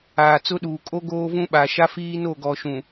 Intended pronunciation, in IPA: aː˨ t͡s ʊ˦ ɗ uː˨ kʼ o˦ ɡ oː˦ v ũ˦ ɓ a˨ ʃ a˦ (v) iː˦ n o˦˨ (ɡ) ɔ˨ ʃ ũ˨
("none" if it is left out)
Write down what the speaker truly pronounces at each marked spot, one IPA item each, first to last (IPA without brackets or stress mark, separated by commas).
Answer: f, ɡ